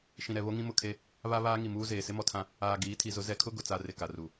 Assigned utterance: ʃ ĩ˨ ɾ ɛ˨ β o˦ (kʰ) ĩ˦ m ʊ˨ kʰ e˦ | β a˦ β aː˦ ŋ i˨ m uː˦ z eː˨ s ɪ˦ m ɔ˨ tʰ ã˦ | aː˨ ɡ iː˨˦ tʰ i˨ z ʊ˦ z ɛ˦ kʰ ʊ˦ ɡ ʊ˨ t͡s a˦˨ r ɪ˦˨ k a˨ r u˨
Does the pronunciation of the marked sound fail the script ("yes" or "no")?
yes